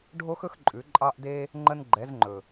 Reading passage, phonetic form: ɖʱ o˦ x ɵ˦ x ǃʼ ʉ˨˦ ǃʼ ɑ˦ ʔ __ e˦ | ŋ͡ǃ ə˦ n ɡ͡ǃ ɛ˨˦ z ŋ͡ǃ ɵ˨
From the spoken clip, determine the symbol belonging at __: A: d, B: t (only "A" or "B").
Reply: A